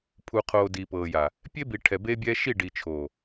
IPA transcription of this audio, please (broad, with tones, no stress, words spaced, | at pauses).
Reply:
pʰu˨qʰoː˨ di˨pɤː˨ja˨ | pʲe˦bi˨ ʈʰɛ˨beː˦bʲɛ˦ ʃi˦˨ɖi˨t͡ʃʰoː˨